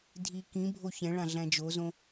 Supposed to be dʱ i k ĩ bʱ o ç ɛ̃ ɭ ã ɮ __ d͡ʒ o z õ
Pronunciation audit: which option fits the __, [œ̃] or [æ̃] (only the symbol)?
æ̃